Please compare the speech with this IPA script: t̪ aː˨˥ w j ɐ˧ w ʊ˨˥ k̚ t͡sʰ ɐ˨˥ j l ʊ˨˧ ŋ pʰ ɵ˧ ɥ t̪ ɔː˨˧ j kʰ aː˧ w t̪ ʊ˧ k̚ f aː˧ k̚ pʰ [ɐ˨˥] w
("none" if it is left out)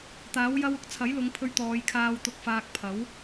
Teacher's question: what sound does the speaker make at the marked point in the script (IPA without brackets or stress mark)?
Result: ɐ˨˥